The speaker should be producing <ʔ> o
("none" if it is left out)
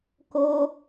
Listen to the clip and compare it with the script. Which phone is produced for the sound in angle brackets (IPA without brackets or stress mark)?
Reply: k